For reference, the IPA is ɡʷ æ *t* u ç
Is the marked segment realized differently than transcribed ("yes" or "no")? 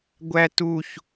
no